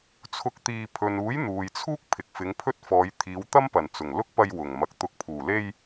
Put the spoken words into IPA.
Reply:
t͡sʰ ʊ˧ k̚ t̪ iː˧ pʰ ɵ˨ n uː˨˥ j n̪ uː˨ j t͡sʰ uː˥ k̚ pʰ ɪ˨ k̚ f ɪ˨˧ ŋ pʰ ɵ˥ t̚ f ɔː˨˧ j t̪ʰ iː˨˧ w t̪ ɐ˥ m p ɐ˨˩ n t͡s ʊ˨˩ ŋ l ʊ˥ k̚ p ɐ˧ j w ʊ˨˩ ŋ m ɐ˨ k̚ t̪ ʊ˨˥ k̚ pʰ uː˨˩ l e˧ j

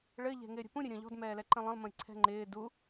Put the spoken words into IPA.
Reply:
ɭ ɘ ʎ ɛ̤ ŋ ɪː ɾʲ ə̤ p ũ ɾʲ ɘ ɾʲ ɔ̃ ʎ ɔ̤ d m ɛː l ɛ ǃ ə̃ lˠ ə̃ lˠ m ə̃ j ǀʰ ɛ̤ ŋ͡ǃ ɪː d u

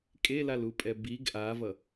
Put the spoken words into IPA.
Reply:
kʼ e l a l u pʼ ɛ b i ɡ ʔ a v ʌ

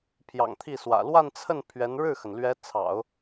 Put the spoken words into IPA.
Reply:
pʰ j ɑ̰˨˩ ŋ t̪ʰ i˥˩ s w ä̰˨˩ l w a˥˧ n t͡sʰ ə˥˩ n pʰ ɥ ɛ˧˥ n ɻ ɻ̩˥˩ x ə˩ n l ɥ ɛ˧˥ t͡sʰ ɑ̰˨˩˦ ʊ̯

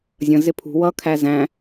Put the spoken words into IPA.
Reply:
zʲ ə̃ z ɪ pʰ ṳ w ʌ kʰ æ z æ̃

